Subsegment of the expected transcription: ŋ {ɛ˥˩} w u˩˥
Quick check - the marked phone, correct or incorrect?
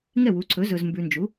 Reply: correct